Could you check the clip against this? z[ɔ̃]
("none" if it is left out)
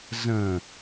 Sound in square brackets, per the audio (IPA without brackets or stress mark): ə̃